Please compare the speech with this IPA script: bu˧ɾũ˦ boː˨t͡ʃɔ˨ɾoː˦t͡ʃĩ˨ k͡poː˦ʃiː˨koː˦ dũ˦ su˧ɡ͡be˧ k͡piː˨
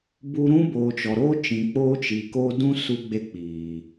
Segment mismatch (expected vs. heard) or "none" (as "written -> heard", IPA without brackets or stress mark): ʃ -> t͡ʃ